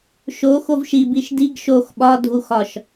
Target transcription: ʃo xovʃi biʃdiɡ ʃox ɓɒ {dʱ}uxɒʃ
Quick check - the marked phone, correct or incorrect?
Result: correct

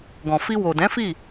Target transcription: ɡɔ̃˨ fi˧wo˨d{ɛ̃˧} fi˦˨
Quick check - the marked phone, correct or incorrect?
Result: incorrect: ɛ̃˨˦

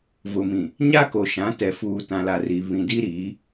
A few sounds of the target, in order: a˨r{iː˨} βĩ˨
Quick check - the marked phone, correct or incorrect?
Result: incorrect: i˨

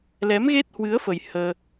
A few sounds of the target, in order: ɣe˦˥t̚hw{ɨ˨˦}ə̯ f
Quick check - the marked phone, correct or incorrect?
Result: correct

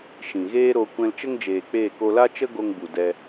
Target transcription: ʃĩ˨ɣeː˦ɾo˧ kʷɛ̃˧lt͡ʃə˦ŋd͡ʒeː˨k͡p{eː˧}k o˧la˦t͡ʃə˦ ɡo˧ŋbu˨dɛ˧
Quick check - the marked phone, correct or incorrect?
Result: incorrect: eː˦˨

